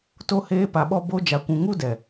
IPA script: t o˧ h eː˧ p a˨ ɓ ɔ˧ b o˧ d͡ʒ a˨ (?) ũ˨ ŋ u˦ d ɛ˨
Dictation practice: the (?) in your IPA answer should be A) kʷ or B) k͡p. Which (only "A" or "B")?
A